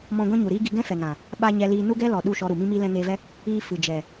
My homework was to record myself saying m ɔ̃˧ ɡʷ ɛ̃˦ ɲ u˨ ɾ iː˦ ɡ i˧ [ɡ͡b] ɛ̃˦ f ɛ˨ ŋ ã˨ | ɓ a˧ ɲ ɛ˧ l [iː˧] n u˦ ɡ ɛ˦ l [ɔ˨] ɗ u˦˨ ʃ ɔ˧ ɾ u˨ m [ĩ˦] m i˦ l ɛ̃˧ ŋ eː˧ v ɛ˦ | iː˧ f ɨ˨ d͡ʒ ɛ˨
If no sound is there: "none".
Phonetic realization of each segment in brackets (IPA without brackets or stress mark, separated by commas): ɡ, iː˧, ɔ˨, ĩ˦